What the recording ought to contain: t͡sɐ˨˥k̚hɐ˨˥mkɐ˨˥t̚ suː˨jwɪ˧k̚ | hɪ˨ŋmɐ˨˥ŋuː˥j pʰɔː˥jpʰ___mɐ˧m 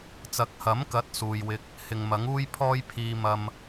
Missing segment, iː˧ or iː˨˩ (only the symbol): iː˧